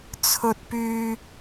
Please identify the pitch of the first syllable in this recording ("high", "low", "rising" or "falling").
high